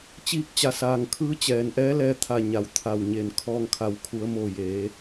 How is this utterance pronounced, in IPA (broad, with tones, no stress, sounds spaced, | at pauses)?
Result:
t͡ɕ iː˧ k̚ t͡ɕ a˩˧ s aː˩ ŋ kʰ ɯː˧˥ t͡ɕ ɛː˩ n ʔ ɛː˧˥ l ɛː˧ t̪ʰ a˧˩ ɲ a˩ w t̪ʰ a˧˩ w ɲ e˧˩ n kʰ ɔː˧ ŋ kʰ a˩˧ w kʰ u˩˧ ə̯ m o˧˩ j eː˩˧